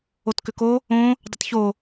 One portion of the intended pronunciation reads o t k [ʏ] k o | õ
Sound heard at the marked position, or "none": ʏ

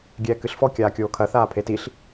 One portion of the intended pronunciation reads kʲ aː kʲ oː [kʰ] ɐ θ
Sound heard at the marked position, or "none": kʰ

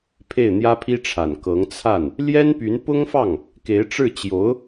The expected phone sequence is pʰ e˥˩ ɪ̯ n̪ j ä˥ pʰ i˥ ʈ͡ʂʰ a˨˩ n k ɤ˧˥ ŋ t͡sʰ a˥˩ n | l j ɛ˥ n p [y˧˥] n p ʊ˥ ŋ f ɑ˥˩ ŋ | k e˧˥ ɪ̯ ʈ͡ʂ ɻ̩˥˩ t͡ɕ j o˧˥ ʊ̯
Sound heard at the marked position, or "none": y˧˥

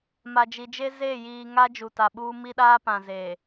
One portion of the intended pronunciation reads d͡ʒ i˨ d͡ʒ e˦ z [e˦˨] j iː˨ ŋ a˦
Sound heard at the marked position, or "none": e˦˨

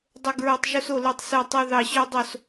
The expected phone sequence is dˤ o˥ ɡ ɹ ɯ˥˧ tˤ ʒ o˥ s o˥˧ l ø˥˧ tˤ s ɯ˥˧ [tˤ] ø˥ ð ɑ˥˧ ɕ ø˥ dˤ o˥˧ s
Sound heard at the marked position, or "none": tˤ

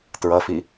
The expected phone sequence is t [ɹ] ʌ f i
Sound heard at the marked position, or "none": ɹ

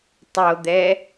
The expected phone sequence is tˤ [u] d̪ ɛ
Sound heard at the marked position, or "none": o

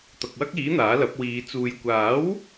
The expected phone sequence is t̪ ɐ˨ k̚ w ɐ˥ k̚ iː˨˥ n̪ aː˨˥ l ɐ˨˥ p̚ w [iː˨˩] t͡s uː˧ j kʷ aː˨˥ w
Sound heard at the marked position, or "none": iː˨˧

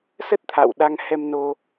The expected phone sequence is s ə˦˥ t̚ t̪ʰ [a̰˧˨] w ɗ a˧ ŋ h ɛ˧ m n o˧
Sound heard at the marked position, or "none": a̰˧˨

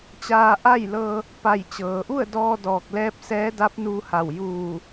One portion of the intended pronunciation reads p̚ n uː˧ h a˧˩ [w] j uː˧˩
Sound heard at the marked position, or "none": w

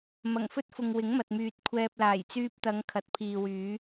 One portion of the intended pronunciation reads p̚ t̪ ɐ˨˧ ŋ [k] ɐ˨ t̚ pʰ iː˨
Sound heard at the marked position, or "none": kʰ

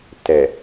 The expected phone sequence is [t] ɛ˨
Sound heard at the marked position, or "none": t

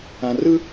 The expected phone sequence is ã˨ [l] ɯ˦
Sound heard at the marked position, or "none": r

